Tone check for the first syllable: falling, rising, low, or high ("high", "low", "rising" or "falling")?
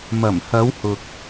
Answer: low